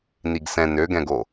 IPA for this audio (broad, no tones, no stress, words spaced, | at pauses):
niɡsɛ̃ nøɡɛ̃ɡo